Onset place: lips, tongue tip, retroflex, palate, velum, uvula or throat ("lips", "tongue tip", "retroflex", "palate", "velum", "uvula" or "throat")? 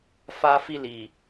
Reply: lips